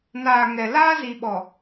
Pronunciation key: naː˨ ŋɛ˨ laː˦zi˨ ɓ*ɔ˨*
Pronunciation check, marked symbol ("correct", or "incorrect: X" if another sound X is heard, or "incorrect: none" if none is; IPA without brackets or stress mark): correct